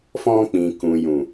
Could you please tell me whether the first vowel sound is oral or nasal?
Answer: nasal